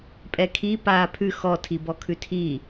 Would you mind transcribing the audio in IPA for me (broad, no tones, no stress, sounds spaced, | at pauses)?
pʼ ɛ kʰ i p aː pʰ ʉ x ɔ tʰ i b ɔ kʰ ʉ tʰ i